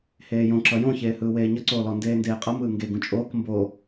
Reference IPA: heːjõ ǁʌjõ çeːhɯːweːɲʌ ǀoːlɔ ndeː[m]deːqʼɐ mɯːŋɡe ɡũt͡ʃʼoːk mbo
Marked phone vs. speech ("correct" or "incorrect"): incorrect